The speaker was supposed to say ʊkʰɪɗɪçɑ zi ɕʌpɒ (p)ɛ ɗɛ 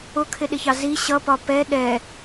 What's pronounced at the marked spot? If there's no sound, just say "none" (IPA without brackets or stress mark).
p